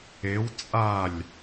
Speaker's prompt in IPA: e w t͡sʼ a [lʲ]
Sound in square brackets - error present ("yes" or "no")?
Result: no